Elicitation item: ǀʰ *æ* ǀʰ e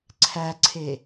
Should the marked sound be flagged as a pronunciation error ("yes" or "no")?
no